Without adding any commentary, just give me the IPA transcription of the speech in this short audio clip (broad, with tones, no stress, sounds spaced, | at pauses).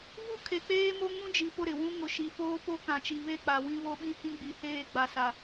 v u˦ kʰ e˨ k͡p eː˦ m o˦ ŋ ũ˦ d͡ʒ i˨ p ʊ˦˨ ɾ ɪ˨ w ũ˦ ŋ ʊ˨ ʃ i˨ f oː˦ p o˦ k ã˨ t͡ʃ i˨ β e˦˨ k͡p a˨ w ĩ˦ β o˦ ɓ ĩ˦ h ĩ˦ ɡ͡b i˨ h eː˦˨ ɡ͡b a˨ s a˨